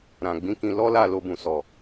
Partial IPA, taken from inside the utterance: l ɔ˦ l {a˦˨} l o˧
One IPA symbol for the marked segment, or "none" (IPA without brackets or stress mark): a˦˨